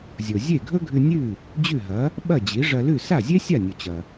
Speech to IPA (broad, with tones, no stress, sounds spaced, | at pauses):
zʲ o˩ zʲ e˥˩ ɡʱ ɵ˥ ɡʱ ʉ˧ nʲ ʉ˥˩ | d͡ʑ ʉ˥˩ ɦ ɐ˩˥ | ɓ ɐ˥˩ d͡ʑ i˩˥ ʐ ɐ˧ l ʉ˥˩ s a˥˩ zʲ e˥ sʲ a˥˩ nʲ o˩ t͡ɕ ɐ˩